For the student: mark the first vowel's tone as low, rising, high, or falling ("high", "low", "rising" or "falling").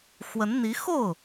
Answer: rising